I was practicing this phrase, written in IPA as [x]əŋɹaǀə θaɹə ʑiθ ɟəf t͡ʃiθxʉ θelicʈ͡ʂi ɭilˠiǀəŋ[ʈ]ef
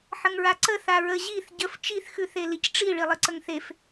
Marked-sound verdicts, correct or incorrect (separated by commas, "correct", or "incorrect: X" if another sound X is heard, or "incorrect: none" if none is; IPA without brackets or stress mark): incorrect: ħ, incorrect: θ